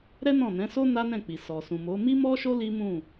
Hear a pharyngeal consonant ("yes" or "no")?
no